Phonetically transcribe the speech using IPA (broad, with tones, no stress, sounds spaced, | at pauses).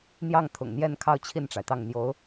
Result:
n̪ j ɑ˥˩ ŋ t̪ʰ ʊ̰˨˩ ŋ n̪ j ɛ˥˧ n kʰ ɑ˥˧ ʊ̯ t͡ɕʰ i˥˩ n ʈ͡ʂ a˩ ɪ̯ t̪ ɑ˥˩ ŋ n̪ j o˧˥ ʊ̯